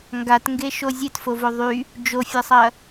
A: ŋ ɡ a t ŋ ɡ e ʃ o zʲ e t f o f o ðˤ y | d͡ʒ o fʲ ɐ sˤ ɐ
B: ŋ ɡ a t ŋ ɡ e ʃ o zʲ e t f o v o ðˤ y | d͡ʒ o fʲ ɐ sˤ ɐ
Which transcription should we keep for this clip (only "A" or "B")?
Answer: B